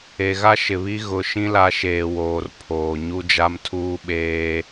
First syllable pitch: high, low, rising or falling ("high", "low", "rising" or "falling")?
low